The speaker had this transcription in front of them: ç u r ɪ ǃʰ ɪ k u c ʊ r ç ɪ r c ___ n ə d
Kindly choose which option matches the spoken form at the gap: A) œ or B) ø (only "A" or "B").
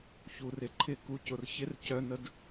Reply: A